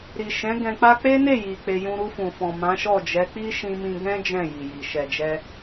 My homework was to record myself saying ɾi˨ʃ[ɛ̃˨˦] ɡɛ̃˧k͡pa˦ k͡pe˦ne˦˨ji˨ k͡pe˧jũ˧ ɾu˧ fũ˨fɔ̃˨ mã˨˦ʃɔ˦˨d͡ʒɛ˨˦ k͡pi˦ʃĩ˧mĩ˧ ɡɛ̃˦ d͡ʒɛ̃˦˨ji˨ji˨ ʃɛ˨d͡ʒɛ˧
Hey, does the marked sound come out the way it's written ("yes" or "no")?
yes